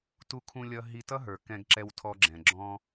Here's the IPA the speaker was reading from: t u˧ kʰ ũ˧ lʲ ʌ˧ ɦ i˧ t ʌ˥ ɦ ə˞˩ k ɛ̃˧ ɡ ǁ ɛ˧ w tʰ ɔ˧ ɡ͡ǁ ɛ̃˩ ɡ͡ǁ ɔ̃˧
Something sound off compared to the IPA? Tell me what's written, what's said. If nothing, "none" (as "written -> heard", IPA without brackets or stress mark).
none